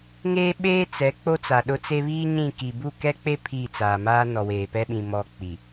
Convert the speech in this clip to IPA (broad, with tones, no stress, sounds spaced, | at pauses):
ŋ eː˦ ɓ eː˦ t͡s ɛ˨˦ k͡p o˦ t͡s a˨ ɗ ʊ˦ t͡s e˦ β iː˦ ɲ ĩ˦˨ k i˨ b u˦˨ k ɛ˦ k͡p e˦ pʰ i˦˨ t͡s aː˨ m aː˦ n ɔ˨ w eː˨ p ɛ˦ ɓ ĩ˨ m ɔ˦ k͡p i˨